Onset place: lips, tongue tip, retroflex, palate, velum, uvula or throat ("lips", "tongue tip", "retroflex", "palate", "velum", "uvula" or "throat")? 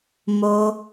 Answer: lips